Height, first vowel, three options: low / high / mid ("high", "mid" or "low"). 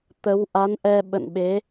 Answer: mid